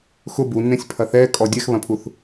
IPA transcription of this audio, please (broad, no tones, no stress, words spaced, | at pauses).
xʊ bunːẽsʲpʰɐ θɛkʼɔ dʲɛxβɐ̃pʰuθ